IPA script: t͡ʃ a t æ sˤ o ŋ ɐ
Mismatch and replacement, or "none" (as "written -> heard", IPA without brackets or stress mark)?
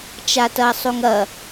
æ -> ɐ